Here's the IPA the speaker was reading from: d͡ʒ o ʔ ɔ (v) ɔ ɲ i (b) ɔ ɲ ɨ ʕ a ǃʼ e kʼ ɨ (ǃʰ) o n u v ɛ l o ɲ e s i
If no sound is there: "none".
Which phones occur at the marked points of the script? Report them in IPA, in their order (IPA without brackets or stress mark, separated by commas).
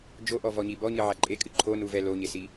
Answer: v, b, ǃʰ